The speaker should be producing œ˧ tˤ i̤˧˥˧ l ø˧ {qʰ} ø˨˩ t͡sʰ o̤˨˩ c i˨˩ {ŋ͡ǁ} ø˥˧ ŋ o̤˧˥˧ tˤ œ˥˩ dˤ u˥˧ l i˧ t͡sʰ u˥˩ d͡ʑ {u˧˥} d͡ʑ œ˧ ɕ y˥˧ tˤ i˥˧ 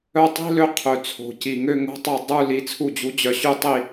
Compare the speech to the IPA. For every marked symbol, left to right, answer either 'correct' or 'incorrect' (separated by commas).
correct, incorrect, correct